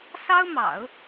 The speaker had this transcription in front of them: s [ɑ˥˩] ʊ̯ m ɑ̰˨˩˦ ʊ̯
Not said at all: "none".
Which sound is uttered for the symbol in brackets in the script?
ɑ˥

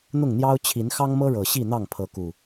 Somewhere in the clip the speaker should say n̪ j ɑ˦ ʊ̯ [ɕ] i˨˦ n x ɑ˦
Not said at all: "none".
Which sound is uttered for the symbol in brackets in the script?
t͡ɕʰ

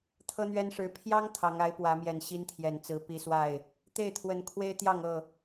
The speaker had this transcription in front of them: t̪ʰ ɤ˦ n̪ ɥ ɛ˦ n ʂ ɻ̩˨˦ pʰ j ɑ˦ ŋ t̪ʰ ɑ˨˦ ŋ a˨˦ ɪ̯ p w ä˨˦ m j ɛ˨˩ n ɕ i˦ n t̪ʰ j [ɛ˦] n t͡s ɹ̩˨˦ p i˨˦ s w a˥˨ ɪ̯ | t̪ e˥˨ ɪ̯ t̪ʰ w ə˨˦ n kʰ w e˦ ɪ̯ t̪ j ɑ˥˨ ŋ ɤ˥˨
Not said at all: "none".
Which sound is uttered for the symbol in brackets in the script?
ɛ˨˩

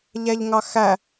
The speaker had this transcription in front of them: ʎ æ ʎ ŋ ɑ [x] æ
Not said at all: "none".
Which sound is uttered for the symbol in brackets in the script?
x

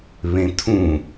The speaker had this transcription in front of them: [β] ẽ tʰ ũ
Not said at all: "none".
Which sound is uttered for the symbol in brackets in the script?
β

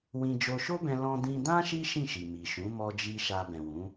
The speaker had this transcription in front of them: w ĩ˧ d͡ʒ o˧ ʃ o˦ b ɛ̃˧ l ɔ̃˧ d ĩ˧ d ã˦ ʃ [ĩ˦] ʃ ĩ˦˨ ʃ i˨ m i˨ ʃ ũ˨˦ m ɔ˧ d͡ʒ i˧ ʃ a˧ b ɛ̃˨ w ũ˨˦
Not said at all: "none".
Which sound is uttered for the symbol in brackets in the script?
i˦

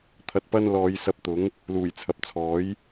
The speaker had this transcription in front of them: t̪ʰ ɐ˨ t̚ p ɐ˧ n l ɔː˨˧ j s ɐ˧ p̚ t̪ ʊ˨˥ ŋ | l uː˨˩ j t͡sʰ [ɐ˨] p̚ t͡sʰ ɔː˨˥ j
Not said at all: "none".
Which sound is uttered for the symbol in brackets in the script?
ɐ˨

